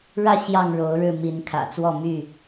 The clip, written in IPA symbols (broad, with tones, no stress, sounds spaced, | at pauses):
ɻ ä˥˨ ɕ j ɑ˥˨ ŋ ɻ o˨˦ ʊ̯ ɻ ɻ̩˥˨ m i˨˦ n kʰ ä̰˨˩ t͡s w ɔ˥˨ m y˥˨